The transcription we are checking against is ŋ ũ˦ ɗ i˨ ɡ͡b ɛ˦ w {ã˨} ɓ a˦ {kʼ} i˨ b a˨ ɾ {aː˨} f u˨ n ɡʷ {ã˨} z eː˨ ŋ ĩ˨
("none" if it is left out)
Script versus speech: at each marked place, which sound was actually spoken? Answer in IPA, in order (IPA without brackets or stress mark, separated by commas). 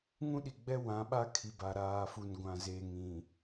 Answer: ã˨˦, kʰ, aː˨, ã˨